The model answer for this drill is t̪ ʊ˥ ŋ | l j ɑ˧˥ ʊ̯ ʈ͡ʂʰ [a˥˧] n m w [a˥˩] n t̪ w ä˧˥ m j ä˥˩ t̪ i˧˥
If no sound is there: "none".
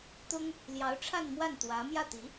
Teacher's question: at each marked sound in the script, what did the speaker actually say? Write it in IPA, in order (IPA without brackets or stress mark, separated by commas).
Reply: a˥˧, a˥˩